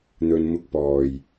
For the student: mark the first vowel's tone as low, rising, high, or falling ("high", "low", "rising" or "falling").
low